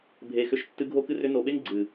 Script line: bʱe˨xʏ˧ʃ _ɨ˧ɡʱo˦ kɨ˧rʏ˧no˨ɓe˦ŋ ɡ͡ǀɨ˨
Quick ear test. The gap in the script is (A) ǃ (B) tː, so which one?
B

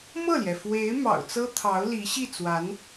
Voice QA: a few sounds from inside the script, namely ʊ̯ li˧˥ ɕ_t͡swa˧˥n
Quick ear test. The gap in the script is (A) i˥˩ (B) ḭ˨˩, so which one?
A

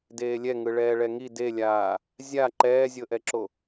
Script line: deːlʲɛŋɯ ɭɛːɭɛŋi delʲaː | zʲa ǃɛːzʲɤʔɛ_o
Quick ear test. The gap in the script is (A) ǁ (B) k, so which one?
A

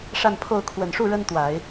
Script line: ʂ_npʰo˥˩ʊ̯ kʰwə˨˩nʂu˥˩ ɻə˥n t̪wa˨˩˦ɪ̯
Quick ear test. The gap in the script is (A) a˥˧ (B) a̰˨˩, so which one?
A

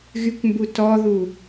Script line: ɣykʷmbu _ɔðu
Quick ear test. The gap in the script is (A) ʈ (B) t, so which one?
B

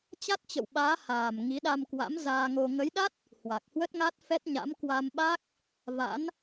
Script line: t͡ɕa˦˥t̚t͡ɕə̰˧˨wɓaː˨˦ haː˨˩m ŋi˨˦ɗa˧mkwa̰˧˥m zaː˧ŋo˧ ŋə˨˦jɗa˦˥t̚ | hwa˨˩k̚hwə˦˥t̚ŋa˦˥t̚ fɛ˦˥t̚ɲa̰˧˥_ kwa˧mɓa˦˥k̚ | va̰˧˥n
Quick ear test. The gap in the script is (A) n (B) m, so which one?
B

